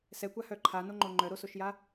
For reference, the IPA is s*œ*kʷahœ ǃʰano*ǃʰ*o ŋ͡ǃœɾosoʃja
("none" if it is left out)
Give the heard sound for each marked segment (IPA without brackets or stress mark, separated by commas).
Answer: ɛ, ŋ͡ǃ